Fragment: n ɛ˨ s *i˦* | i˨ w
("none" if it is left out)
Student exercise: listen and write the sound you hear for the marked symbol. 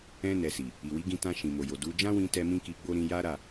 i˨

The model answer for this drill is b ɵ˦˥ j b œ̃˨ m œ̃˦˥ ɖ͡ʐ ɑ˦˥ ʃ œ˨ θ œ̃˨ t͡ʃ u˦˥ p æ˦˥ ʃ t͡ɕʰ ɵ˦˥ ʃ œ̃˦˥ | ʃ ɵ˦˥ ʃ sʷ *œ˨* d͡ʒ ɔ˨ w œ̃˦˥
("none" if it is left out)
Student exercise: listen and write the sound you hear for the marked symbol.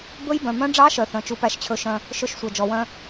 œ˨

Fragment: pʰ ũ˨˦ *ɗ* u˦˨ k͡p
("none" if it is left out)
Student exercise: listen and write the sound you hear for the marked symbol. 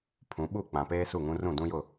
ɓ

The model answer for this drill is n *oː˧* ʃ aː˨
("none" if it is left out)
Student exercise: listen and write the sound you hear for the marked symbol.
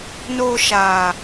oː˧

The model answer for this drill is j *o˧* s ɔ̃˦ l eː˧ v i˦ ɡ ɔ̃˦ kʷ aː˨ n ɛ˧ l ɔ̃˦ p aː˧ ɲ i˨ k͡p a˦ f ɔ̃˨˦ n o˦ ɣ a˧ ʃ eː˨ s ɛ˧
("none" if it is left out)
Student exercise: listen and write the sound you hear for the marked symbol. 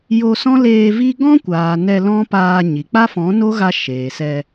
o˧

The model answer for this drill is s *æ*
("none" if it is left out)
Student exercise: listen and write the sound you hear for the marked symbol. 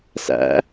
æ̰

